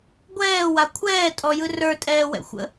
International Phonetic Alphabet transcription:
ɡʷɛːwa kʷʰɛːtʼɔjɯ rə˞tʼɛːwɛ̰xʷə̰

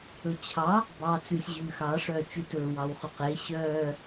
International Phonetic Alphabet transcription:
ɵt͡ɕʰɑ | bɑːt͡sʉsʲ ʑʉːxɑ ʂœːt͡ʃʉtɵː wɑwχʉqe ɕœː

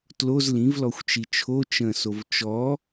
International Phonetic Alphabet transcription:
tloz lĩvlɔxʷt͡ʃi t͡ʃʰo t͡ʃə̃sov t͡ʃɔ

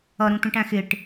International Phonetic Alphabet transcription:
ʌɾũt̪ũʈæ̃ xɪʈ

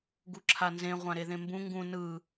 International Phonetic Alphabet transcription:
ɡuǁʰanzẽ ʁʷãɾeðẽmbũ ŋɡũ nɯ

